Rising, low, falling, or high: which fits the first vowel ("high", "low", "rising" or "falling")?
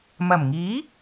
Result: low